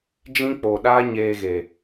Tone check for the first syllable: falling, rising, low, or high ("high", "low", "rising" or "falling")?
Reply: high